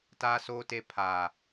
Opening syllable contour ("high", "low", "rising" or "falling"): high